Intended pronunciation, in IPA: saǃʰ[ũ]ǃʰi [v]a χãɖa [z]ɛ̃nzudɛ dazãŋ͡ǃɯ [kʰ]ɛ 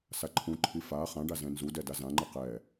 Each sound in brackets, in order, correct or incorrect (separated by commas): correct, incorrect, correct, incorrect